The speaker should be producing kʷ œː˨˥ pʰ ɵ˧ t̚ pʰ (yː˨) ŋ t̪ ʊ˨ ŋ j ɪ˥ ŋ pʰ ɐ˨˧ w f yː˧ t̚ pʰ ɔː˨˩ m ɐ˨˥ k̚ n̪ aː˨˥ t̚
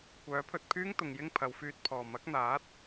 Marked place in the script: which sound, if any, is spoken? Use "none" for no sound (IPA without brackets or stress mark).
yː˥